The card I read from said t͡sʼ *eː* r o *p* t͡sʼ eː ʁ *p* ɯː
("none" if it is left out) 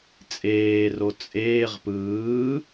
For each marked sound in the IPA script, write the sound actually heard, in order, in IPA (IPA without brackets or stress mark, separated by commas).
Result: eː, none, p